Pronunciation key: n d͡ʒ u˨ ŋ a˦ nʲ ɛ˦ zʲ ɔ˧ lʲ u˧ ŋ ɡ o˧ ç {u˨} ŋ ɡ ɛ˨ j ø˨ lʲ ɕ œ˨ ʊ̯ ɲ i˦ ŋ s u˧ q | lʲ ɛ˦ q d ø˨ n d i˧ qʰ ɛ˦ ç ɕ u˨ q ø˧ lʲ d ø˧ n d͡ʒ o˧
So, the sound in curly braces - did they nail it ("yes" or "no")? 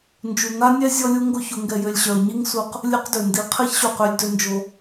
no